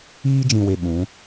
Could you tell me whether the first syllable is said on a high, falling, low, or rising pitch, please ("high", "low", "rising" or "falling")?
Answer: high